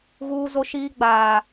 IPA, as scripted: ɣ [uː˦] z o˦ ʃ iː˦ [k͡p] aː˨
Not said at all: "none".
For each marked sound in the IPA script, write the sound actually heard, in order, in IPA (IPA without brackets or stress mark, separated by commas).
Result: uː˦, ɡ͡b